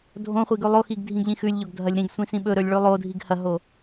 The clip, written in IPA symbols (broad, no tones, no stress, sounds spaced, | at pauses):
dʱ õ χʷ i ɡ ʉ lˠ o x i ɡ dʱ ĩ ɡ ʎ ĩ x ʉ lʲ ʎ o ɡ dʱ ɐ lʲ ɾ ĩ ɡ sʷ ĩ s ĩ ɓ ɵ ɾ ɵ lʲ ɭ ʉ lˠ o dʱ i ɡ h ɐ ɦ o